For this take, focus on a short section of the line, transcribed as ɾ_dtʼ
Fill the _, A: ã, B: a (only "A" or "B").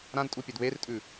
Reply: A